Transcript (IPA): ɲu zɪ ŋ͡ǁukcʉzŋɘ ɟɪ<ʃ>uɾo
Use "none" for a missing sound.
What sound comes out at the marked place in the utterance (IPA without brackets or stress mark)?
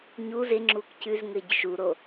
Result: ʃ